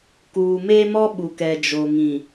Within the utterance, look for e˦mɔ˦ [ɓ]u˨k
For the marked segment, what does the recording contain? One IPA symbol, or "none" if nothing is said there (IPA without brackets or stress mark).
ɓ